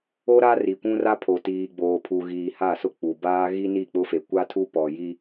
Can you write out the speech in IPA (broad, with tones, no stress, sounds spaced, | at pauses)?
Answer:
o˦ ɾ a˦ r i˨ kʷ ũ˦ r a˦ pʰ o˨ t iː˨ ɡ͡b oː˨ pʰ u˨ ɣ iː˨ h a˦˨ s ʊ˦ k͡p u˨ b aː˦ ɣ i˦ n i˦˨ k͡p ʊ˦ f e˨ kʷ a˦ tʰ u˦ p ɔ˨ j i˦